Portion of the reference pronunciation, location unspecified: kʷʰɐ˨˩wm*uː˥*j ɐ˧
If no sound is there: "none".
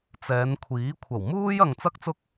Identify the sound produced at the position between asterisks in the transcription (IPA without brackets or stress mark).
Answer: uː˥